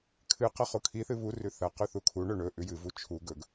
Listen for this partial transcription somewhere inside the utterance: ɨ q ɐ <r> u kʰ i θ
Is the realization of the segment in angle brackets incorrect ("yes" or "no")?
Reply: yes